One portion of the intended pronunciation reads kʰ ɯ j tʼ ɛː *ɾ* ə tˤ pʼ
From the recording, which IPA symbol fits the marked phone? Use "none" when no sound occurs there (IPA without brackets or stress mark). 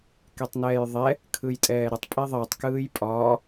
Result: ɾ